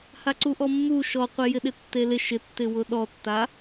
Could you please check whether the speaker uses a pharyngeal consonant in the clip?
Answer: no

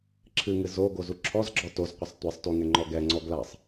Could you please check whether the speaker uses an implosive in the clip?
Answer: no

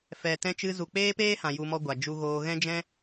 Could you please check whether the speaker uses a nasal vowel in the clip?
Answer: yes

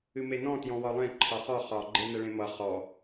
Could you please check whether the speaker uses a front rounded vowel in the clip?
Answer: no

